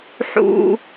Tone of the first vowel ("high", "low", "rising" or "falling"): high